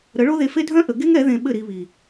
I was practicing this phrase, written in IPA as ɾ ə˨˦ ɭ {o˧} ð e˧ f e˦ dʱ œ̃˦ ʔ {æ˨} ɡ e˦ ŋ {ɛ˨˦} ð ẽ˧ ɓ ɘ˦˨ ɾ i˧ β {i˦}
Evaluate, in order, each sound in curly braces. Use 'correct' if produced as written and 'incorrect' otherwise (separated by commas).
incorrect, incorrect, correct, incorrect